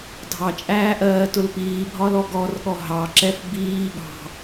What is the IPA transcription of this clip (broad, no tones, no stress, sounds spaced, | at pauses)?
dʱ ɑ t͡ʃʼ æː ʔ ɜː t ʊ l p iː bʱ ɒ l ɔ ɡ ɔ r ɠ ɔ ɦ ɑ ǁ ɛ f b iː ɠ ɑ̤